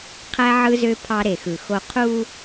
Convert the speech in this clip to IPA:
qʰæ˦ ʕɯ˦zø˦ pʰɑ˦ɾe˨xɯ˨xo˦ qʰu˦

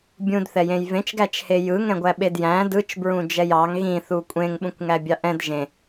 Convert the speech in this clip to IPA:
bʲũdθɛ jẽjvẽt͡ʃɡæt͡ʃhe jɯ ŋɛ̃ɡʷæɓedjæ̃ dɯt͡ʃ bɹũd͡ʒɛjɑŋ ɣĩθu kʷʼẽŋɓũkʷŋæ bʲɑʔɛ̃d ʒẽ

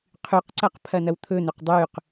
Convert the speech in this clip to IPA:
qʰʉqǀɐq pʰɐnɐwt̪ʰɵnɵq dˤʉq

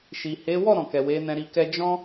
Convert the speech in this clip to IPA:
ʃi˨he˨˦ wɔ˦˨ ɾɔ̃˨kɛ˨ we˨˦nɛ̃˧ɾi˧kɛ˦ d͡ʒɔ̃˦

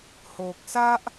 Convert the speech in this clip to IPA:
ho˨k̚sa˦ʔ

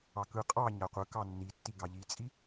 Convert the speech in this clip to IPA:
ɑkɯ qʼɑ ɲaqʷɯkɑ nːitːiɡɑ ʎit͡sʼi

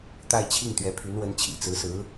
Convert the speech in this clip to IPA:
t̪a˥˧ɪ̯t͡ɕʰi˥˩ŋ t̪ɥɛ˧˥pʰy˧˥nwə˧˥nt͡ɕʰḭ˨˩ t͡sɹ̩˧˥sɹ̩˧˥

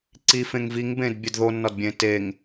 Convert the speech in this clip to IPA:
ǀifẽŋ viŋbẽdbʲed ðonːɒdbʲẽ teŋ

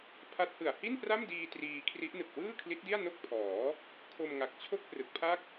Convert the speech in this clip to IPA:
pʰa˦˥t̚hɯ˨˩a̯ hi˥˩npra˥˩mdiː˧ triː˧ kʰri˦˥ʔnɯ˨˩k̚ wɯː˥˩kʰli˦˥t̚di˥˩a̯ no˥˩k̚pʰɔː˩˦ | kʰo˧mŋa˨˩k̚t͡ɕʰo˥˩k̚ prɯ˨˩k̚pʰa˥˩k̚

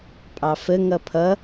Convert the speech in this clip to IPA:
pʼɑfə ŋʌpʰʌ

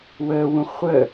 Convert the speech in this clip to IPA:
wəːwũ χʷə

